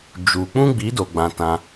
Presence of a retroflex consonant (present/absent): absent